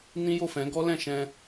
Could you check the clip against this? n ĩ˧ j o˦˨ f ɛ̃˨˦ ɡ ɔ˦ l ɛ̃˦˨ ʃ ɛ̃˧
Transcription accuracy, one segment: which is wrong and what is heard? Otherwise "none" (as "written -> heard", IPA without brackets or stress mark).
ĩ˧ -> ĩ˦